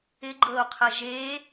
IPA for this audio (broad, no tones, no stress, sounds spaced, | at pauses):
ɪ ɡ͡ǃ ɤ o̯ qʰ ə ʒ e